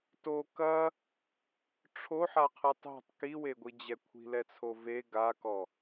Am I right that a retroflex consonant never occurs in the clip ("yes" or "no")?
no